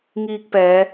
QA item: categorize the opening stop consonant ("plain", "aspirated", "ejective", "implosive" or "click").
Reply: plain